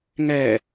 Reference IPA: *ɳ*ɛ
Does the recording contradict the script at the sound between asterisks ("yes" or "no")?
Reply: yes